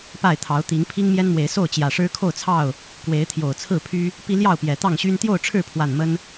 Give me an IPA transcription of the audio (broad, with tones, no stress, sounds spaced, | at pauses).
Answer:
p a˥˨ ɪ̯ t̪ʰ ɑ˨˦ ʊ̯ t̪ i˨˦ ŋ pʰ i˦ ŋ m j ɛ˦ n m w e˨˦ ɪ̯ s o˥˨ ʊ̯ t͡ɕ j ä˨˩ ʂ ɻ̩˦ kʰ o˥˨ ʊ̯ t͡sʰ ɑ˥˨ ʊ̯ | k w e˨˦ ɪ̯ t̪ʰ j o˨˩ ʊ̯ t͡sʰ ɹ̩˥˨ pʰ y˦ | p i˦ l j ɑ˥˨ ʊ̯ p j ɛ˨˩ t̪ ɑ˥˨ ŋ ɕ y˦ n t̪ j o˥˨ ʊ̯ ʈ͡ʂʰ ɻ̩˥˨ pʰ w a˨˩ n m ə˦ n